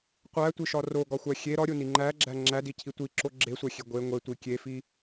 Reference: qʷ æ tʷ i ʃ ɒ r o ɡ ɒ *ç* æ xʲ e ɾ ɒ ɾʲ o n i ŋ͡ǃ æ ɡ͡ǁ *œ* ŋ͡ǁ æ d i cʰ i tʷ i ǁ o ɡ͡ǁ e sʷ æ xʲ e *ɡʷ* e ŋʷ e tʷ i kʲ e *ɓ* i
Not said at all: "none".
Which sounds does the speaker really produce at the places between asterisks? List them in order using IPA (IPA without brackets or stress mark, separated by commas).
xʷ, æ, ɡʷ, f